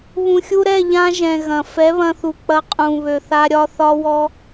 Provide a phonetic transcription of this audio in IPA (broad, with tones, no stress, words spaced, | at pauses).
βũ˨xʲu˧ɾɛ˦˨ʎã˧ ʒɛ̃˨ ɣɐ̃˨ fɛ˨˦βɐ̃˧θu˨k͡pɐ˧ qʼũ˨ βø˨θa˧ ɾʲɒ˦θɒ˦wɔ˦